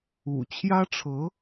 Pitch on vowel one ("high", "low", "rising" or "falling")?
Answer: low